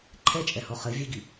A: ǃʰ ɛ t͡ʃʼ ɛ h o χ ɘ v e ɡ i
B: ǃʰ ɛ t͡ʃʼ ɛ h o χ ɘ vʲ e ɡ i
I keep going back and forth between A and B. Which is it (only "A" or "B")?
B